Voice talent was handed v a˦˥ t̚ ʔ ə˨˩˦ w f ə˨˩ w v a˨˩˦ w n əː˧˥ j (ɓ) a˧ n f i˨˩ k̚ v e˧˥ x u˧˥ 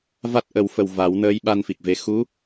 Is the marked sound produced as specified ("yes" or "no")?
yes